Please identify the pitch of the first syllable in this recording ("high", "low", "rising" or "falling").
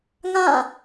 falling